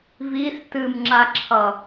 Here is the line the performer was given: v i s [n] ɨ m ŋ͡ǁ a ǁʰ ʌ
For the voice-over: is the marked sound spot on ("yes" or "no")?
no